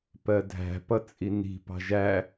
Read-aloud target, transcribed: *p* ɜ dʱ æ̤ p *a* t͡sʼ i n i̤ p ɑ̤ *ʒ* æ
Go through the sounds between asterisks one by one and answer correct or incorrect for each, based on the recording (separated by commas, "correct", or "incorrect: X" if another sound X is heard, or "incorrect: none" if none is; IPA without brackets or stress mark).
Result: correct, incorrect: ʌ, correct